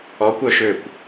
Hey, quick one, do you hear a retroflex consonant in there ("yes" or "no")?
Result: no